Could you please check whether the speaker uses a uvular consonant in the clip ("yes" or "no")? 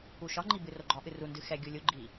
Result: no